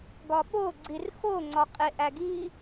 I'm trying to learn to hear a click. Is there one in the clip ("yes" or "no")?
yes